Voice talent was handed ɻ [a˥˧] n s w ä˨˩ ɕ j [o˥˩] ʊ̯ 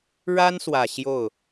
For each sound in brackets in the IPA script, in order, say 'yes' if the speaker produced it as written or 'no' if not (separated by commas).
no, yes